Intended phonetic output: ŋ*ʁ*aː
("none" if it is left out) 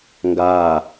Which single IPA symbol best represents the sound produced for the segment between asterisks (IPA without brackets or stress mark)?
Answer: ɡ